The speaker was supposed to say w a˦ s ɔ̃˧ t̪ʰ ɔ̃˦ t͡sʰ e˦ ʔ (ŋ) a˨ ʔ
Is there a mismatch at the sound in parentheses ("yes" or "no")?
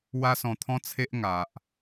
no